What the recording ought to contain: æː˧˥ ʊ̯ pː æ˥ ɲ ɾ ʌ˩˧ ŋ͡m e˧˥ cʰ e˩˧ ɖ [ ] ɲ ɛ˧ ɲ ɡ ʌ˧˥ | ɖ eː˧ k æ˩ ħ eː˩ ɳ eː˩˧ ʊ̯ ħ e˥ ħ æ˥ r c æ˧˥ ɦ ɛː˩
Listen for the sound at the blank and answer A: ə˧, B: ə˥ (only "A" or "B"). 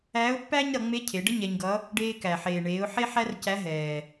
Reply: B